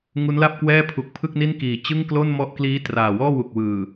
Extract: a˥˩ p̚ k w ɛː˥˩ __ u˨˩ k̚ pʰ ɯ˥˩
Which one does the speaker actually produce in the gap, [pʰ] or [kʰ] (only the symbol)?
pʰ